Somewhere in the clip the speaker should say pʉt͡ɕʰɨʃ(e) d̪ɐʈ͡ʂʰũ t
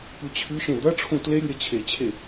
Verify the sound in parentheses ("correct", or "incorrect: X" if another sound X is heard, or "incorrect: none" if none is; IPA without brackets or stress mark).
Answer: incorrect: ẽ